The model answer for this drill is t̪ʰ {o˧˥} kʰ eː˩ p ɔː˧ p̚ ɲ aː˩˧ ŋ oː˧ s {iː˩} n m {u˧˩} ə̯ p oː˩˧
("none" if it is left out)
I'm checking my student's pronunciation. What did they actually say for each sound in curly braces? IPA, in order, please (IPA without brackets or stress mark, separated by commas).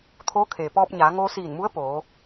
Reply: oː˧˥, iː˧˩, u˧˥